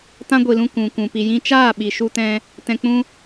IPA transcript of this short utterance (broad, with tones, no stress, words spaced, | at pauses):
tã˦ɡʷi˨lũ˧ kũ˨kũ˨ pi˨jĩ˧t͡ʃaː˦˨ɓi˨ ʃu˧tɛ̃˧ | tɛ̃˧k͡pũ˦